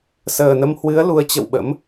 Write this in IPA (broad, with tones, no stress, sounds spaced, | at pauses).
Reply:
s əː˨˩ n ə˧ m h w ɨ˨˦ ə̯ l u˨˦ ə̯ t͡ɕ ə̰˧˨ w ɓ ə̰˧˥ m